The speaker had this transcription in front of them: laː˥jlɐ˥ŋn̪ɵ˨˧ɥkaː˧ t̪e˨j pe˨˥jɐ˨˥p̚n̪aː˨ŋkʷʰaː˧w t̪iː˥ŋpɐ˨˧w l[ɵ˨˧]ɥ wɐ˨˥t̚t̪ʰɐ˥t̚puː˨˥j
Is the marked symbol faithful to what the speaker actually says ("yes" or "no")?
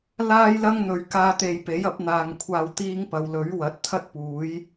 no